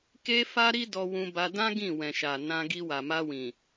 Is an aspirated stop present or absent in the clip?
absent